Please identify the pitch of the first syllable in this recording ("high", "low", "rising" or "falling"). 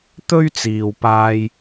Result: high